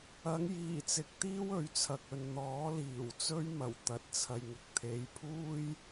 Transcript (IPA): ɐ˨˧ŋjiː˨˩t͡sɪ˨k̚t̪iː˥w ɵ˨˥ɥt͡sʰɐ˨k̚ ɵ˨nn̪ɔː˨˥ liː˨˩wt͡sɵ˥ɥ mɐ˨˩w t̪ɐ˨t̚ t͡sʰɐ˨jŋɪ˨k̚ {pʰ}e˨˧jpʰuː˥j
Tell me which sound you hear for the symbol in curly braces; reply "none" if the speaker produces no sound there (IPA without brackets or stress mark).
t̪ʰ